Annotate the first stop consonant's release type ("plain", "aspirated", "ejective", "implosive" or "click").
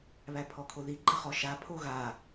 aspirated